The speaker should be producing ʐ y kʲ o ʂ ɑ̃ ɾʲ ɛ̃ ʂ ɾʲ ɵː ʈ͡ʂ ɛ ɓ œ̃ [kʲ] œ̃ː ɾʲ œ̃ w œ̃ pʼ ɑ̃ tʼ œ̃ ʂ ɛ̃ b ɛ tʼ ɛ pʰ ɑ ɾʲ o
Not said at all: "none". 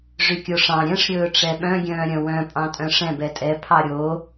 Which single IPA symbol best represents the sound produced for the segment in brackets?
ɡʲ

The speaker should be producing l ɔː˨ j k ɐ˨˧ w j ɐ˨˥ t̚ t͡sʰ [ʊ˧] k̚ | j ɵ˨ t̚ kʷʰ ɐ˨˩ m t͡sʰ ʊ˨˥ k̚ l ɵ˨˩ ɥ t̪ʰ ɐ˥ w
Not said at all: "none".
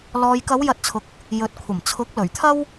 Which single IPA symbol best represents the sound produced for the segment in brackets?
ʊ˨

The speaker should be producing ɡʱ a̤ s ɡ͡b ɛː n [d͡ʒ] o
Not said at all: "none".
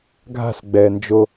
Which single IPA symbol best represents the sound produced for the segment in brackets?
d͡ʒ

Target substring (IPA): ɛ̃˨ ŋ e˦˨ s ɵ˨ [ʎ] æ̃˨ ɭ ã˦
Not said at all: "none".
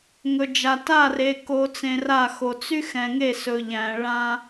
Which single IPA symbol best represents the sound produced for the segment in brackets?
ʎ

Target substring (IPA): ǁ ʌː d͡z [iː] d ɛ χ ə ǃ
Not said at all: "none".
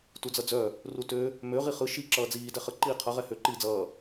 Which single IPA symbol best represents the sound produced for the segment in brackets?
iː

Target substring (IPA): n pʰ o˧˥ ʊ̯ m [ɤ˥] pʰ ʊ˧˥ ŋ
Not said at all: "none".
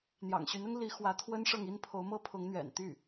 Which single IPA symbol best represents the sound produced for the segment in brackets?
ɤ˥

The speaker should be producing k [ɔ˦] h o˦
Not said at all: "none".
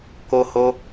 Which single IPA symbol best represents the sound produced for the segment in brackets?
o˦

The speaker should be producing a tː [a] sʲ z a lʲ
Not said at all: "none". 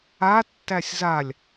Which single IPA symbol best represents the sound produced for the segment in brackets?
æ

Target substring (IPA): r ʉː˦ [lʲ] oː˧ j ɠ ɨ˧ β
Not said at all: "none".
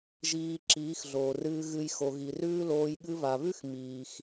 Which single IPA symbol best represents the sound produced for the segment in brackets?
l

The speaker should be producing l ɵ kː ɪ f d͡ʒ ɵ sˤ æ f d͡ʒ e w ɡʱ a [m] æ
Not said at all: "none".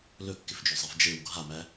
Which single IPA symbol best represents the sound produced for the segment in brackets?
m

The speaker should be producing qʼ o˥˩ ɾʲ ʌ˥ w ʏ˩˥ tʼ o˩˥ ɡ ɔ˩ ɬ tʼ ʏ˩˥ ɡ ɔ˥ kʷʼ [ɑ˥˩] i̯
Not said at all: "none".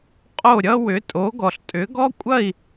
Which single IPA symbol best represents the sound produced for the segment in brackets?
ɐ˥˩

